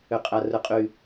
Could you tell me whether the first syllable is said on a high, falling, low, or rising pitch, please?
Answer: low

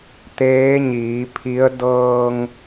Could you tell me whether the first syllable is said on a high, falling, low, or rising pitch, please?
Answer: rising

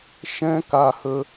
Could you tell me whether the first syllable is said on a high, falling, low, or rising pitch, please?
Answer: high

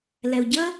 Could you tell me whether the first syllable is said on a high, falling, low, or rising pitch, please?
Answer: low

